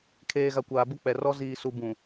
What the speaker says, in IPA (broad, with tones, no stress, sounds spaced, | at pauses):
kʰ eː˨ ɣ a˨ kʷ aː˨ b ʊ˦ k͡p ɛ˨ r ɔ˦ z iː˨ s u˨ b ũ˨